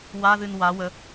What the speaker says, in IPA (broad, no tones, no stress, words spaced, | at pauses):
waðɨn wa wə